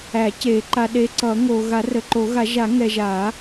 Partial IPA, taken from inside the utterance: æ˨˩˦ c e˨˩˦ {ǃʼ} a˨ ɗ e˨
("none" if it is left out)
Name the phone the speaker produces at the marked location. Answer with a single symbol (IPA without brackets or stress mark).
ǃ